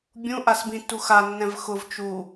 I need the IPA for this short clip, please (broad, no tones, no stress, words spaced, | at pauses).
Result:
bʲũʔas bĩtːu xanːɛ̃v xʊv t͡ʃu